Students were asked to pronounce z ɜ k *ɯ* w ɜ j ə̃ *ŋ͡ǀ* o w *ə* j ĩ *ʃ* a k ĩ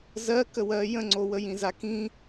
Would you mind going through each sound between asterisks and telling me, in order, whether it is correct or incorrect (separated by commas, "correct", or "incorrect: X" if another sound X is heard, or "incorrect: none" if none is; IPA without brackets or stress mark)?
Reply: incorrect: ə, correct, correct, incorrect: z